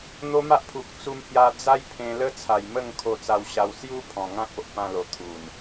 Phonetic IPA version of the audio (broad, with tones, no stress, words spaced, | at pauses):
n̪o˧ ma˦ʔpʰu˨k̚ t͡su˧mhja˧ d͡za˦jpʰẽ˧ lə˦t͡sʰa˨˩jmə˥˧ŋ kʰo˧t͡sa˧wɕa˧w sju˦ pʰɔ̃˨˩ŋã˦k̚o˨ʔ pã˧lo˨˩ t̪ʰu˨˩n